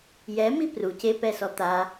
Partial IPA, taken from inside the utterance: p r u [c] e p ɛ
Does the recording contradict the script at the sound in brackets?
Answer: no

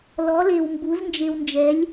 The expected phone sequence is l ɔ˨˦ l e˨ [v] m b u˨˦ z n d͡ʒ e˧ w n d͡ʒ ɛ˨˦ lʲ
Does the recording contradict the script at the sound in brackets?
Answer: yes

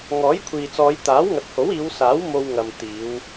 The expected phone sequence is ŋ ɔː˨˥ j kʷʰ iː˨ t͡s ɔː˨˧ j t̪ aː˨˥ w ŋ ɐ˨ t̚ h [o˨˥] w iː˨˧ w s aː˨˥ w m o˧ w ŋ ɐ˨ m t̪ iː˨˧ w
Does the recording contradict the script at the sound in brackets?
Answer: no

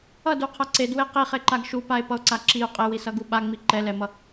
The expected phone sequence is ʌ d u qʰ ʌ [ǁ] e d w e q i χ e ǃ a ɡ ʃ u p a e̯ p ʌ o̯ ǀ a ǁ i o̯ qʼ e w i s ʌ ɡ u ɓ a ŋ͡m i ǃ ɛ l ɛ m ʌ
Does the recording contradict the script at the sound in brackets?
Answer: yes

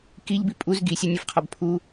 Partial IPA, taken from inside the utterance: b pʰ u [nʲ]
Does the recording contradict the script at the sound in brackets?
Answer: yes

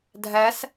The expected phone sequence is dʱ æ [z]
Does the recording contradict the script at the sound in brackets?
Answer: yes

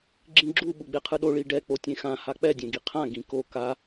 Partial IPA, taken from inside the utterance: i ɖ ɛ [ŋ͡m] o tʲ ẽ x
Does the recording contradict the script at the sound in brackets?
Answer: yes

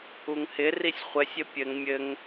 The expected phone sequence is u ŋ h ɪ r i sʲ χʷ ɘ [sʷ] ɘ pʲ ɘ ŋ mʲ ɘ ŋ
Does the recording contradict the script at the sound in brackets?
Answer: yes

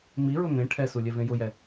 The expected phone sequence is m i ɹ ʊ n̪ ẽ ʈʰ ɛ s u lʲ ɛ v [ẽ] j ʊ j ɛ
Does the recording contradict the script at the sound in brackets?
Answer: no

